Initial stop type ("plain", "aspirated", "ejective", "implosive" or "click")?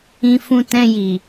plain